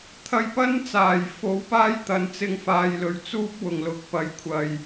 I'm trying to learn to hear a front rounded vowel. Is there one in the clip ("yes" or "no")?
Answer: no